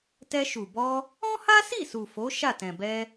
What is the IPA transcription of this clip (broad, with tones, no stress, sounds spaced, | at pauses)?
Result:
t ɛ˧ ʃ u˨ b ɔ˧ | ɔ̃˦ h a˦ s i˦˨ s u˨ f o˨˦ ʃ a˦˨ t ɛ̃˨ b ɛ˧